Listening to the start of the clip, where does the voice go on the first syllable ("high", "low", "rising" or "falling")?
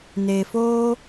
low